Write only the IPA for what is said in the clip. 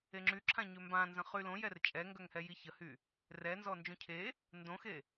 e ŋ͡ǁ y ǁʰ ã ɲ ø m b ã n z ə̃ χ y l õ j ɛ r t͡ʃʼ ɛ ŋ ɡ œ ŋ h ɛ j i ç ə h y | r ɛ n z ɔ n d͡ʒ ũ cʰ e | n d õ x e

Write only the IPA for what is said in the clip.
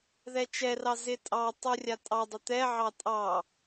ð ɛ t͡ʃ ɛ r ɑ z ɪ tʼ ɑ tˤ u rʲ a tʼ ɑ dˤ ɪ t̪ ɛ ʕ ɑ tʼ ɑ

